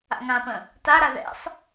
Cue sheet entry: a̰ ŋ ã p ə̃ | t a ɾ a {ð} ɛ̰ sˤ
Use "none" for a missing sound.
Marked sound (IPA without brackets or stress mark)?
ð